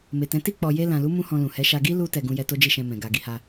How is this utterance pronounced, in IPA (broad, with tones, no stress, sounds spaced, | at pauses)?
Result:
m e˨ t ɛ̃˨˦ t i˦˨ k͡p ɔ˨ j e˧ l ã˨ l u˨˦ m ũ˦ h ɔ̃˧ l ũ˨ h ɛ˨˦ ʃ a˧ ɡ i˦ l u˧ t ɛ˨ ɡ ũ˧ j ɛ˧ t o˦ d͡ʒ i˦˨ ʃ ɛ̃˧ m ɛ̃˨ ɡ a˨ ɡ i˨˦ h a˧